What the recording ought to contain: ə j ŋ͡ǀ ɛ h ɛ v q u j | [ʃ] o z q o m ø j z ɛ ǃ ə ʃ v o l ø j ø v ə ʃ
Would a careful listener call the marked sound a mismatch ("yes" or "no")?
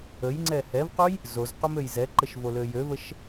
yes